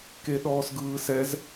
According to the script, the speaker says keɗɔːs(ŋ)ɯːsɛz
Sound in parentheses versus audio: incorrect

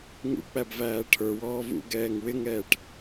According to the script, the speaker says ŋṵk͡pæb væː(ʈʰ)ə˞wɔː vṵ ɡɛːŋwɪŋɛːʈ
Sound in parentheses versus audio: correct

